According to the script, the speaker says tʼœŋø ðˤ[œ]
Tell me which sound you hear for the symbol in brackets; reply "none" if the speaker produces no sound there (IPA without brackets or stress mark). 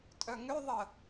ə